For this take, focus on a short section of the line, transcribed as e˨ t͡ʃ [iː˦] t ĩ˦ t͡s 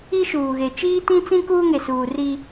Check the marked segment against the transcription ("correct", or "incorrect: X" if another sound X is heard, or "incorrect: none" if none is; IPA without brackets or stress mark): correct